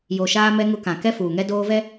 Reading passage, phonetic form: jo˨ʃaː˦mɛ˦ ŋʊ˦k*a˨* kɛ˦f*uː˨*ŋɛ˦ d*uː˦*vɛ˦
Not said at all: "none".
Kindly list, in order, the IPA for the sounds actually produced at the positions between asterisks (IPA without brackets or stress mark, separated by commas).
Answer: ã˨, uː˨, oː˦